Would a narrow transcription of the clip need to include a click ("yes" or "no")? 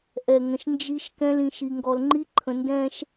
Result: yes